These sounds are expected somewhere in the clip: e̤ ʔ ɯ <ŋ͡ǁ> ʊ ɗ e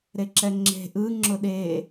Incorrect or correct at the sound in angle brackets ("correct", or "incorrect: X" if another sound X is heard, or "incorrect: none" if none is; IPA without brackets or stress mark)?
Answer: correct